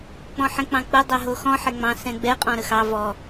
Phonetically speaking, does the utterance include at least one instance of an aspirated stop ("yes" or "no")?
no